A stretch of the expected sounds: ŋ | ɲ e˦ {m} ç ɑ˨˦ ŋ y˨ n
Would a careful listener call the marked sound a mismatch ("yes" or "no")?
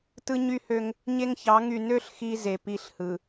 yes